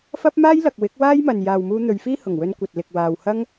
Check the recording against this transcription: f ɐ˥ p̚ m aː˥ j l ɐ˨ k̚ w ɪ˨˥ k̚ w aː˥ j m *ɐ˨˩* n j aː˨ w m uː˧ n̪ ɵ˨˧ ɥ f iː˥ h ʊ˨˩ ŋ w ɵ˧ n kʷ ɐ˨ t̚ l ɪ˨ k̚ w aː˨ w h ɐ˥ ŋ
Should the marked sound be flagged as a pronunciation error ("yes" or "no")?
yes